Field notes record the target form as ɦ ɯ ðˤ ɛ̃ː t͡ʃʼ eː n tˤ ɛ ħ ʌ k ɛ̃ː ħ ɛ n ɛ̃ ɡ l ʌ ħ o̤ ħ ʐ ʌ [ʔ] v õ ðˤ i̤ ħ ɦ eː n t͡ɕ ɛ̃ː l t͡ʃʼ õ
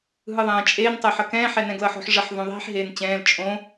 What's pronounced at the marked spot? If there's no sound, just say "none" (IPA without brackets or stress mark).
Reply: ħ